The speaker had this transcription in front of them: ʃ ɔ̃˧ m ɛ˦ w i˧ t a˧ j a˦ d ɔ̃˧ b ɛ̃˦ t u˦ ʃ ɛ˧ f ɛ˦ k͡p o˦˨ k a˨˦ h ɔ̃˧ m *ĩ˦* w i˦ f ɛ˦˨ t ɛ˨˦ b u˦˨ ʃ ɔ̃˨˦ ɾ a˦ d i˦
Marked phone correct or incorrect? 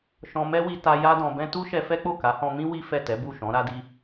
correct